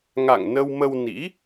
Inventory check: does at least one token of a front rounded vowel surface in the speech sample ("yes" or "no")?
no